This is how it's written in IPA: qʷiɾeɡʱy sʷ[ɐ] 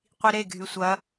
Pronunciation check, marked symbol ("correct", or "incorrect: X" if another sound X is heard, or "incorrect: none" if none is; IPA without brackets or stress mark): correct